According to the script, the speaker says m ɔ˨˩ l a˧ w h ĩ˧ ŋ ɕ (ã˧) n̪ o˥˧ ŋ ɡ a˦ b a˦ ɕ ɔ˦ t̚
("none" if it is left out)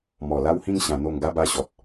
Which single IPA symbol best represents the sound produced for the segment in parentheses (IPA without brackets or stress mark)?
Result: ã˧